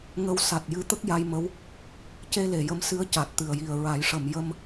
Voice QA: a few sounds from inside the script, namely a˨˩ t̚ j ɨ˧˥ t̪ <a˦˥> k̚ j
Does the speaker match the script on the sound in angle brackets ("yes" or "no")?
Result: no